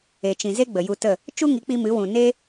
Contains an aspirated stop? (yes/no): no